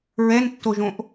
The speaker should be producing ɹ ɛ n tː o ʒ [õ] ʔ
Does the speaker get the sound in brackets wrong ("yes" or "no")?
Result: no